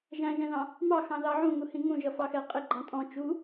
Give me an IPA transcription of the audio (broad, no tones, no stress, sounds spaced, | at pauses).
ʒ æ̃ ʒ ɛ̃ ð ɑ̃ | m ɑ x ɑ̃ ð ɑ ʕ ũ ŋ u h ĩ ŋ ũ ʒ ʌ f ɑ x ɛ qʼ ɪ ɡ͡ǃ ɑ̃ tʼ ɔ̃ t͡ʃ u